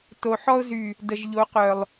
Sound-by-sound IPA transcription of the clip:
t o˨ ħ ɔ˧ ʊ̯ z y˨ | d ə˨ ʒ ʎ o˨˦ q œ˨ lˠ

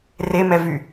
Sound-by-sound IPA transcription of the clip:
r e m ɛ v y

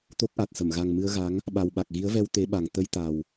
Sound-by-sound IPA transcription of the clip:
t̪ o˦˥ k̚ ʔ a˨˩ t̚ s ə˧˩ m ɣ a˨˩ ŋ m ɨ˧ ə̯ ɣ a˨˦ ŋ | ɓ a˨˩ w ɓ a˨˩ k̚ ɣ i˨˦ ə̯ v ɛ˧ w t̪ e˨˦ ɓ a˨˩ ŋ t̪ ə˧ j t̪ a˨˩ w

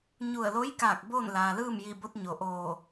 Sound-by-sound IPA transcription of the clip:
ɲ u˧˩ ə̯ l o˧˥ j k aː˧˩ k̚ b oː˥˨ n l aː˩ l ɯː˥˨ m j iː˧˩ b o˧ t̚ ɲ o˩ ʔ oː˧˩

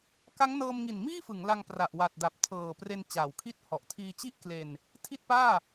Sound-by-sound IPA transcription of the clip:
k a˦˥ ŋ n ɤː˧ m ŋ i˨˩ n m iː˥˩ f ɯ˩˦ ŋ l a˧ ŋ p r a˨˩ ʔ w a˨˩ t̚ d a˨˩ p̚ tʰ ɤː˨˩ p r e˧ n t͡ɕ aː˨˩ w kʰ i˥˩ t̚ h ɔ˨˩ ʔ tʰ iː˧ t͡ɕ i˥˩ ʔ k l e˧ n | tʰ i˥˩ t̚ p aː˥˩

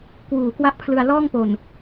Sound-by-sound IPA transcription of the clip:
k w uː˩˦ k w a˦˥ ʔ pʰ l ɯ˧ a̯ l ɔː˥˩ ŋ p o˨˩ n

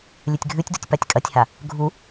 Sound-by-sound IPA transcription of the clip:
lʲ ɨ tʲ ɡʱ ʉ tʲ d u tʲ p a tʲ kʼ ɐ tʲ h a | ɡʱ u

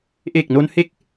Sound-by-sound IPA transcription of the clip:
ʔ e˨˩ k̚ n o˧ n h e˦˥ k̚

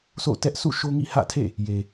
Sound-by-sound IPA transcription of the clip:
sʰ o̰˦˨ t ɛ˦ ʔ sʰ ṵ˦˨ ʃ o˦ ŋ ḭ˦˨ h ä̰˦˨ tʰ ḛ˦˨ | j e˨

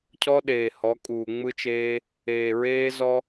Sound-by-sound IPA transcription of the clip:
cʰ ɔ˦ ɗ eː˨ h ɔ˨˦ kʼ uː˨ ŋ͡m ɯ˦ t͡ʃ eː˦ | eː˨ ɹ eː˦ z ɔ˦

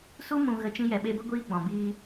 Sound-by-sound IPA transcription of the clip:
s u˦ m ũ˧ ɣ ə˧ t͡ʃ ĩ˧ j ɛ˨ ɓ e˧ b ə˦ ɡʷ iː˦ ɡ͡b ɔ̃˨ b iː˧

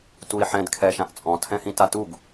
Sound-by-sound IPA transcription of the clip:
t u i̯ ħ ɛ̃ d kʰ ɛ ʃ ã ʔ t͡sʼ ɔ̃ tʰ ɛ̃ h ĩ t a t u ɡ

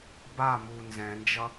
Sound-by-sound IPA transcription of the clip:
b a m u n z ɛ̃ n d͡ʒ ʌ

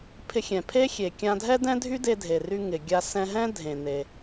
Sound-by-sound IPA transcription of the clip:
pʰ ɪ˧ xʲ ɛ̃˩ pʰ e˥ xʲ e˩ kʲ ã˧ dʱ ɛ˥ d ɛ̃˥ dʱ y˥ d e˧ dʱ e˩ r y˧ ŋ ɪ˩ ɡʲ a˧ s ɛ̃˧ ɦ ɛ̃˥ dʱ ẽ˩ n e˩

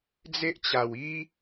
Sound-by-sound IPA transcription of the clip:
d͡z e˦ ʔ t͡ɕ a˨˩ w i˦

